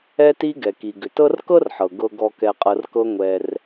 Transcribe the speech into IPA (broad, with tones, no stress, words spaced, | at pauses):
ɛ˦ti˦ ɡɛ˩ki˩ ɡʏ˩tɤ˦rkɤ˥rħɤ˩ ɡɤ˨ ɡɔ˨kɛ˨qʼɤ˨r kɤ˦ ŋʷɛ˨r